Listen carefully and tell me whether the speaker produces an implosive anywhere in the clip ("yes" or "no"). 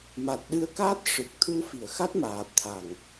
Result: yes